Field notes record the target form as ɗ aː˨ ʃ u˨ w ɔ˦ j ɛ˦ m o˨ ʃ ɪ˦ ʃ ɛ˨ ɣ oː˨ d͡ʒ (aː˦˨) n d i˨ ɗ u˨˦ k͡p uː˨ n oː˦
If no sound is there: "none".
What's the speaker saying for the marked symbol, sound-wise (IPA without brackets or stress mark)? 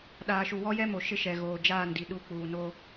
aː˦˨